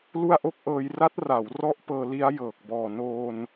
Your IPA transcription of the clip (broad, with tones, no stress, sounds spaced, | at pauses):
l u˥˩ a̯ ʔ o˥˩ k̚ ʔ ɤː˧ j r a˦˥ t̚ r a˩˦ w r ɔ˦˥ ʔ p ɤː˧ l i˦˥ a̯ j ɤː˨˩ k̚ b ɔː˨˩ n oː˧ n